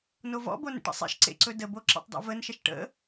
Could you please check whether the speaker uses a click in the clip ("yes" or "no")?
yes